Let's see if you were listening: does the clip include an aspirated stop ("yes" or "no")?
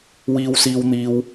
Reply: no